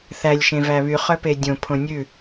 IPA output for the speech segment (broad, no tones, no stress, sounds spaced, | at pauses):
θ æ lʲ ʃ ẽ v æ β y χ œ p e dʲ õ pʰ õ nʲ ʉ